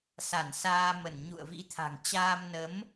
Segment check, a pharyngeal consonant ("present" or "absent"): absent